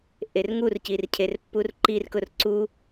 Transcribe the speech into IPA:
ʔ e r ŋ u r c i r cʰ e r pː u r ǃ i r k ʊ r ǀ u

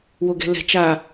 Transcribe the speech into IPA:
w o ɡ ɛ̤ l ɛ̤ t͡ʃ a

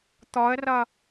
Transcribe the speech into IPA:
t̪ ɔ ə̯ r ʌ

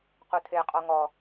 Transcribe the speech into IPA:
q u tʰ e qʼ ɔ ŋ ɔ

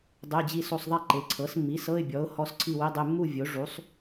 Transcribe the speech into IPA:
dˤ e˧˥˧ d͡ʑ i˥˧ s o˥˧ sˤ ðˤ ɛ˥˧ ǃ e˩˥ ǀʰ ɤ˩˥ s mː i˩˥ s ɤ˧˥˧ ɪ̯ bʲ ɔ˩˥ ʊ̯ h ɔ˧˥˧ s ǀʰ i˥˧ w i˧˥˧ dˤ e˧˥˧ mː u˥˧ vʲ o˩˥ ʐ u˩˥ sˤ

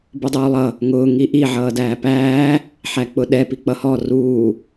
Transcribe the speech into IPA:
b u dˤ uː lˠ ʌ | ŋ ʊː ŋ i ʔ i ʕ ʌː d æː p æː | ħ æ k͡p ʊ ɗ ɛ p i k͡p ʌ h ɔ r uː

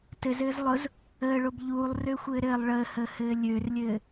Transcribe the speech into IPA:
t ɘ z ɘː z lˠ ʊ z | əː ɭ o b ʎ uː lˠ r ø xʷ ɘː ɾ ɘː lˠ ɭ əː h əː h ɘː lʲ ø r lʲ ɘː

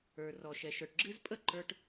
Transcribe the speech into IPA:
ə˞˨ r ɔ˨ ʃ ɛ˨ ʃ ə˞˨ ʈ ɡ͡ǁ ɨ˦ z pʼ ə˦ ǃ ə˞˦ ʈ

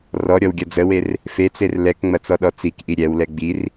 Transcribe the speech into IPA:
r ɔ ɾʲ ɔ w ɡʲ ɐ d͡z ə w e r | f e t͡s e r l ɛ k ŋ͡m ɐ t͡s ɔ ɗ ɔ t͡s i k ʔ i ɾʲ ɛ w l ɛ ɡ͡b i r

